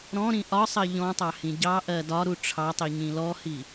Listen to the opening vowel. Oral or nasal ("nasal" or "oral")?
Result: nasal